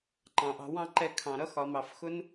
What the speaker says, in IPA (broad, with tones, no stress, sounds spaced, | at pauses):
ǃ ɑ̃˨ ʔ ɑ̤˧ w ɑ̃˦ ǃ ɛ˧ kʰ ɑ̃˨ ɾ ʌ˦ x ɒ˨ m ɑ˨ f x ʊ˦ n